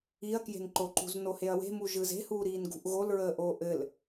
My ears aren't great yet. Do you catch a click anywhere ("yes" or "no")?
yes